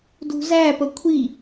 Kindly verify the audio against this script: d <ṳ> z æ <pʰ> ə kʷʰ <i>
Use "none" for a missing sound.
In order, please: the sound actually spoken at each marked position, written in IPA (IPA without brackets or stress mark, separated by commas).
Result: ṳ, p, i